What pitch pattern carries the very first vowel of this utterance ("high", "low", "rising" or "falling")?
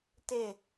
falling